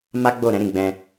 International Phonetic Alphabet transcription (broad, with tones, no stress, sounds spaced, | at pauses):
m a˦ ɡ͡b o˦˨ ɾ ɛ̃˨˦ ɾ ĩ˦˨ ɡ͡b ɛ̃˧